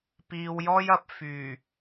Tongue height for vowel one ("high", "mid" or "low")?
high